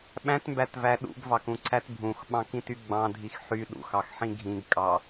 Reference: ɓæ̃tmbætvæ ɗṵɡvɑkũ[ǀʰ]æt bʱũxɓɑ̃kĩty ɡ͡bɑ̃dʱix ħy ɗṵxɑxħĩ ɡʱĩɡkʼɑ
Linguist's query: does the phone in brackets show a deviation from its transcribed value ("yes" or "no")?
no